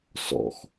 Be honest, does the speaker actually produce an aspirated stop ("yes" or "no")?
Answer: no